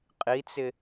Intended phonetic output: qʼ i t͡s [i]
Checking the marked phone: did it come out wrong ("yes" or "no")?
yes